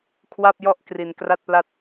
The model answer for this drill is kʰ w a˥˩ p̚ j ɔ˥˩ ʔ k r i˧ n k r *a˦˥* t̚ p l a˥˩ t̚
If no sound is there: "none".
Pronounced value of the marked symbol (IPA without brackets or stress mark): a˥˩